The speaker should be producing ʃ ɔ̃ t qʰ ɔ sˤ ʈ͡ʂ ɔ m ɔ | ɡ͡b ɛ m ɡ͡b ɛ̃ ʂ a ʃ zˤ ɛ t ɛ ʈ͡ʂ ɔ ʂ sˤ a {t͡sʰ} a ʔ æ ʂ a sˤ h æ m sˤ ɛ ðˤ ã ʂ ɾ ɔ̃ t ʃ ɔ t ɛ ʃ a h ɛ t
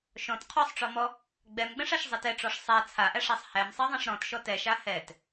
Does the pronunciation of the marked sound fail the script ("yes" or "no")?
no